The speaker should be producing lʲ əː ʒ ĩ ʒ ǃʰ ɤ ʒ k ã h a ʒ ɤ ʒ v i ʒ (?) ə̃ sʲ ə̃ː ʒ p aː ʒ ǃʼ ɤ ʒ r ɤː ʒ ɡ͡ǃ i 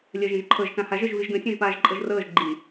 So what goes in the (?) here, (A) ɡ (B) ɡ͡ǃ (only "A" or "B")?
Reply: A